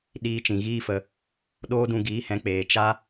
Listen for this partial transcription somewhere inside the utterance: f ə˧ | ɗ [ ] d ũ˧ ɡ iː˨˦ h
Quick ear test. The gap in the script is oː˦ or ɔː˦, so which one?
oː˦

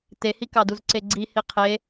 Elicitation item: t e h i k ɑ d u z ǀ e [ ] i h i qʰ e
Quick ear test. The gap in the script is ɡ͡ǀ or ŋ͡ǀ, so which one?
ɡ͡ǀ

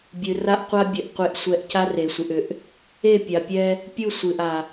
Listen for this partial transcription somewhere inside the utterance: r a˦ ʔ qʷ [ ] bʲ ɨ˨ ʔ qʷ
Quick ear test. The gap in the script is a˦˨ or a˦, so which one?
a˦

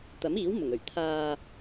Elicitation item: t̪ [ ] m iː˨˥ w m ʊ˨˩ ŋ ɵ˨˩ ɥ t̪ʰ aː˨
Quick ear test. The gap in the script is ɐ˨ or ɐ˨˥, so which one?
ɐ˨˥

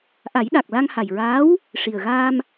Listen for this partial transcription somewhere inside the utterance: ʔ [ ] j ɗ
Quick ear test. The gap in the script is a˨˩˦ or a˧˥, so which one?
a˨˩˦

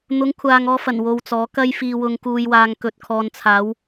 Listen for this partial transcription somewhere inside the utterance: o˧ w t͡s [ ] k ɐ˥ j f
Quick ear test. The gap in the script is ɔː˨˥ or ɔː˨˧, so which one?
ɔː˨˥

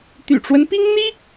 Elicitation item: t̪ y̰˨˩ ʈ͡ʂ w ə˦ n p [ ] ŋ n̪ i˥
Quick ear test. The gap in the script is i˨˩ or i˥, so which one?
i˥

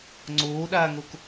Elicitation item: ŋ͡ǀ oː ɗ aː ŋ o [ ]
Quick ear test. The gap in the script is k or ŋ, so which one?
k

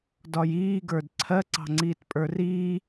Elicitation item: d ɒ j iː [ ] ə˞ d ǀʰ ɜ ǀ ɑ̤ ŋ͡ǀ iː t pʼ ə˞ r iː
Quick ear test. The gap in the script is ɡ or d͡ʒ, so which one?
ɡ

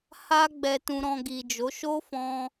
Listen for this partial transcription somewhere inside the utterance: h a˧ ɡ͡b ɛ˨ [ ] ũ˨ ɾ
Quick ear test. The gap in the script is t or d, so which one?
t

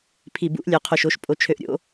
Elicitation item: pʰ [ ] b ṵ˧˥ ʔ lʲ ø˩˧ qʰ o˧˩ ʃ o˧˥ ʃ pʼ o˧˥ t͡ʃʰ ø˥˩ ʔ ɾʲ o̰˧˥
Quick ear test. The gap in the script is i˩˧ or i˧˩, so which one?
i˧˩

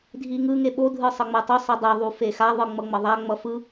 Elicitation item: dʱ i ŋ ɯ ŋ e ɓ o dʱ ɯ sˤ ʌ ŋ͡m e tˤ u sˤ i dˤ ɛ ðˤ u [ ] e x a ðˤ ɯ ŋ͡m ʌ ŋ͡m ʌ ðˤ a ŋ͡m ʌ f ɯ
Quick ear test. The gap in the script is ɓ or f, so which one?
f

